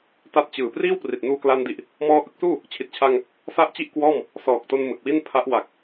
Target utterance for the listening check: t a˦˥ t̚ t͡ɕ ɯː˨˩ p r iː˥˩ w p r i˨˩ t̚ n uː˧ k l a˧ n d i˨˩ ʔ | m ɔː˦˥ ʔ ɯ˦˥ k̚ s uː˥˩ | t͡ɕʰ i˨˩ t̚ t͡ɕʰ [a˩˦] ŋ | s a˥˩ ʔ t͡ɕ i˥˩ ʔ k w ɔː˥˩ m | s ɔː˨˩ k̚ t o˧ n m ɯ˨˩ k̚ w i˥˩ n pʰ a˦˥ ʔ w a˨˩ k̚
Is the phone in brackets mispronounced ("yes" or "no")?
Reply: yes